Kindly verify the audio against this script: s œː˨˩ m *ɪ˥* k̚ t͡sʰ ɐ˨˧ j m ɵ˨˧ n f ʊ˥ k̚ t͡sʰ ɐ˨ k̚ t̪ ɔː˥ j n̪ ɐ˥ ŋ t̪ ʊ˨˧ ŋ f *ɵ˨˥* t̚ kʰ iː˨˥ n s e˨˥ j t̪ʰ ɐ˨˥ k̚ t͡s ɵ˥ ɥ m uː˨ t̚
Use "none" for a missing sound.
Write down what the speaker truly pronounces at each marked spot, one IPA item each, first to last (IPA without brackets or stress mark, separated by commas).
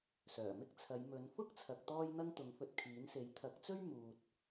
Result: ɪ˥, ɵ˧